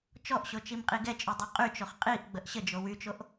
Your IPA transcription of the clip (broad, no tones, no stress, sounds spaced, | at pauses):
t͡ʃ ɔ ʔ ɕ o t͡ʃ i m qʼ i ɡ ɛ t͡ʃʼ y dˤ y qʼ y t͡ʃ o χ qʼ i ʔ ɡ͡b ə ʔ ɕ ə d͡ʒ o w y t͡ʃ o ʔ